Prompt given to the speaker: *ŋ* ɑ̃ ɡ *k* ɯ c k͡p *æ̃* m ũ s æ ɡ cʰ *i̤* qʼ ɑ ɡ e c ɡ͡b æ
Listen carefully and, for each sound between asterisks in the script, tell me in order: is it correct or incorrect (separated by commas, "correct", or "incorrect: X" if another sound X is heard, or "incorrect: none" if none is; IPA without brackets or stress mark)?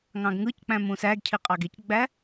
correct, incorrect: ŋ, correct, incorrect: i